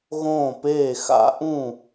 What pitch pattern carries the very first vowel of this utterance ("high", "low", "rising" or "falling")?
falling